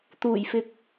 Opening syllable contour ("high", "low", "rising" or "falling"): low